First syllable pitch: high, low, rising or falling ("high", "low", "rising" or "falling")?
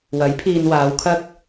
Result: rising